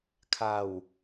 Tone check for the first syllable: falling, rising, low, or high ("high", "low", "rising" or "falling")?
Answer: low